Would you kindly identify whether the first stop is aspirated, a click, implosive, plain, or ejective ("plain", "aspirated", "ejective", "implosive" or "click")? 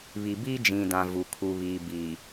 plain